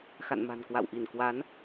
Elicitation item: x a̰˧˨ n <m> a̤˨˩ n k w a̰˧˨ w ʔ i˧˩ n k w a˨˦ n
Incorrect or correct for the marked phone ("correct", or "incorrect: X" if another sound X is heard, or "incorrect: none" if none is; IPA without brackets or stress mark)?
correct